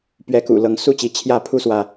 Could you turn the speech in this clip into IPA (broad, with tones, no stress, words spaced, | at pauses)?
pɥɛ˨˦kṵ˨˩ lɤ˨˦ŋ su˦t͡ɕi˨˦ t͡ɕʰjä˥˨pʰu˦swä˨